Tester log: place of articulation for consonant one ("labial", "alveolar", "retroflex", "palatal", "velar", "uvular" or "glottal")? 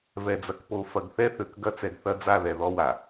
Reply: labial